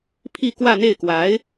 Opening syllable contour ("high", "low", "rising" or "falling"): falling